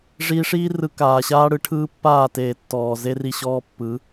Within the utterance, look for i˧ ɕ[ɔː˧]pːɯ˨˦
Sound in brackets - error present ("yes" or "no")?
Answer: no